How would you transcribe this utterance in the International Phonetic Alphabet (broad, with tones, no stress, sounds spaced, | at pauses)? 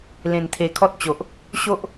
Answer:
l ẽ˨˩ n t̪ʰ e˨˩ kʰ ɔ˦ t̚ t͡ɕ o˨ ʔ | ɕ o˦ ʔ